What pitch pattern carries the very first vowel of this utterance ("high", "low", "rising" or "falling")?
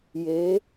rising